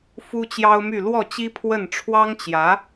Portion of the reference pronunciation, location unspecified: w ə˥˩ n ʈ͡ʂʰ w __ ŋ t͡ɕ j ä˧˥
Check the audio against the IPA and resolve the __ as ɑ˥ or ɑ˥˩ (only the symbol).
ɑ˥